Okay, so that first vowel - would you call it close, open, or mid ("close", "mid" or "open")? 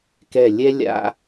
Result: mid